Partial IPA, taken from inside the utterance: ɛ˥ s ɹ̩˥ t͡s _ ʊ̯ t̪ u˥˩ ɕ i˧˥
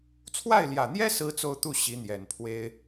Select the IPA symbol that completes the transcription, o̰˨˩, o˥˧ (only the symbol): o˥˧